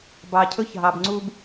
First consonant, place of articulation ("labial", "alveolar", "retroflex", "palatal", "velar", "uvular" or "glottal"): labial